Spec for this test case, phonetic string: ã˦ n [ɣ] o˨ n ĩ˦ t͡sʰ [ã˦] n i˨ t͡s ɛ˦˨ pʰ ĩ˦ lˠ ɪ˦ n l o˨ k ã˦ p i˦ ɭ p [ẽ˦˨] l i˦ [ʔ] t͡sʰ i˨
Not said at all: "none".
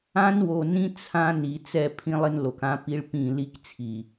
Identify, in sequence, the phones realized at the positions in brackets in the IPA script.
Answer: w, ã˦, ĩ˦˨, k

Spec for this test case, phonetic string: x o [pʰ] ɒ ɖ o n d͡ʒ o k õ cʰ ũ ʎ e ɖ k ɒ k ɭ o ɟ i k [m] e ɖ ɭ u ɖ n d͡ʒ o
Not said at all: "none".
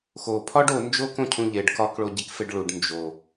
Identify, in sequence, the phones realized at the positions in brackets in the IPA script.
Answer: pʰ, f

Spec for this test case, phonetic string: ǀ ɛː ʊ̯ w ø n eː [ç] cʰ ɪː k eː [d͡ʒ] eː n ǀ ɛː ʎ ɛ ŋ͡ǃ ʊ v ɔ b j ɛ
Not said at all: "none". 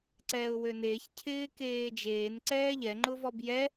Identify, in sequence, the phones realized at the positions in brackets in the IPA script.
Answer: ç, d͡ʒ

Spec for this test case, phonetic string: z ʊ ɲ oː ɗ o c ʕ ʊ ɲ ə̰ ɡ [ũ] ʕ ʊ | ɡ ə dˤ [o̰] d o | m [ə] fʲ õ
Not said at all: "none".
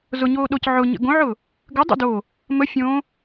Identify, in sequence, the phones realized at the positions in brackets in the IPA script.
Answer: õ, ṵ, ə

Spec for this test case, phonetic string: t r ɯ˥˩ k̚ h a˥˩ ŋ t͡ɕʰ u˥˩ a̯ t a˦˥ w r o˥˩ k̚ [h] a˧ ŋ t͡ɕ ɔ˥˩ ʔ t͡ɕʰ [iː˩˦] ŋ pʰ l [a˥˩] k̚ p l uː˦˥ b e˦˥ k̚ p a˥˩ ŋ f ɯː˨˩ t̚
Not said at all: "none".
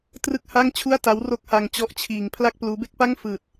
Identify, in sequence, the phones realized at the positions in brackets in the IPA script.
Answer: h, iː˧, a˥˩

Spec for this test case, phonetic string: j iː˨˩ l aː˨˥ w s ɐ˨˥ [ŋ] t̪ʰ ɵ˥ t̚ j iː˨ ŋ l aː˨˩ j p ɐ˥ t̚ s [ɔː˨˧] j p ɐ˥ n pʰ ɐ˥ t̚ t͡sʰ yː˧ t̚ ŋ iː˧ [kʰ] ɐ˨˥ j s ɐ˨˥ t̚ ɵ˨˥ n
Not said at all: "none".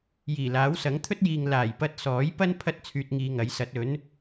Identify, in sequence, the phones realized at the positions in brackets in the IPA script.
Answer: ŋ, ɔː˨˥, ŋ

